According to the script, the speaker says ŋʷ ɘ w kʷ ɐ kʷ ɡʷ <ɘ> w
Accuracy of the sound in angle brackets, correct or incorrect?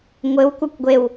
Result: incorrect